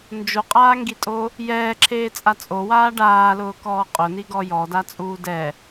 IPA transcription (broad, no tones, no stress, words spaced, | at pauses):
nd͡ʒoqʼaːŋɡitʼo | jɛːǁʰeːt͡sʼa t͡sʼowaː ɖaːlʊːkɔː qʼʊniɡɔ jɔdat͡sʼuː dɛ